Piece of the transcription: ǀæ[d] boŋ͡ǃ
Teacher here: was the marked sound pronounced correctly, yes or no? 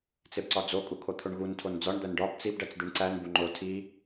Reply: no